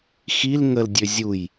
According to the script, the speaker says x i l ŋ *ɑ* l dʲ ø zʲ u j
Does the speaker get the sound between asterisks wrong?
yes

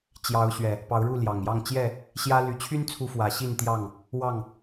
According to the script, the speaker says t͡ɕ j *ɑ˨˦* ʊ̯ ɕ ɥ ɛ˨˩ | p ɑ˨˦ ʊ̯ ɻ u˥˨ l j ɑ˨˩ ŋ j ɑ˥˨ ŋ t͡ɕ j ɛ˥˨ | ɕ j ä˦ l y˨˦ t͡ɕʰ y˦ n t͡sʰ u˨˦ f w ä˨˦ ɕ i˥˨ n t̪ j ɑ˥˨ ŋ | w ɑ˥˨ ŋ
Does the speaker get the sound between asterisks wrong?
no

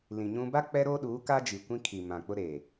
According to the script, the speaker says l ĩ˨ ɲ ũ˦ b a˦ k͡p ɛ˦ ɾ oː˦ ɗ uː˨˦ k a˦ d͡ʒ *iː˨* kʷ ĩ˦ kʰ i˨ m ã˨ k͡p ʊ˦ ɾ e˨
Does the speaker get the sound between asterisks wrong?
yes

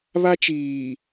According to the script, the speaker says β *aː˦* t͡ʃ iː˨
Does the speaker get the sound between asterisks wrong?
yes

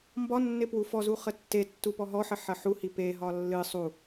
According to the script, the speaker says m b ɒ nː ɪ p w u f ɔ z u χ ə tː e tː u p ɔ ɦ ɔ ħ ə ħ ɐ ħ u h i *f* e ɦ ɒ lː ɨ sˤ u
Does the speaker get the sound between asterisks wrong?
yes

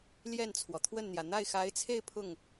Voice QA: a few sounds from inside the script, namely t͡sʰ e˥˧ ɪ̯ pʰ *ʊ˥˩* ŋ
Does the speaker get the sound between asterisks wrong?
no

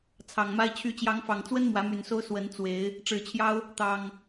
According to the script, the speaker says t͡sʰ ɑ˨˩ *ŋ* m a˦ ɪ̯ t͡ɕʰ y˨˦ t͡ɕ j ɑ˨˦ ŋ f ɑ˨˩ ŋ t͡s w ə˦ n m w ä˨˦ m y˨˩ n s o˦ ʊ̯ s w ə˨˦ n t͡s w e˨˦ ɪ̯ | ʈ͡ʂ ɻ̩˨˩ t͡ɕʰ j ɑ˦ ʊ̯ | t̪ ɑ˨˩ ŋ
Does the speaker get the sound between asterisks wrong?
no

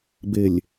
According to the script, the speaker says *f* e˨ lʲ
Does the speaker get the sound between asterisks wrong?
yes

